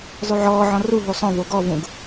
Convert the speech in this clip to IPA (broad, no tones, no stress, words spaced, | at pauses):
zˤʉʕɔːʕɔ̃ ruɦu sˤõvo ɡɔvũɡ